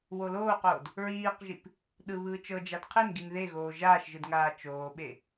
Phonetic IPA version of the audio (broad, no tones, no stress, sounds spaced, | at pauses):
w o l oː q oː d | ɹ iː q ʒ i p | ɗ ɯ β ɯː t͡ʃ ɤ d͡ʒ a d qʰ e n ɡ i n ð e ɣ oː ʒ aː ʃ ʒ ɯ d ŋ aː t͡ʃ oː ɓ e